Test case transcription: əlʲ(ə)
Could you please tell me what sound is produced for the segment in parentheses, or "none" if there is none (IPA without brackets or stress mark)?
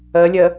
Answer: ə